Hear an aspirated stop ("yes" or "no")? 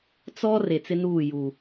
no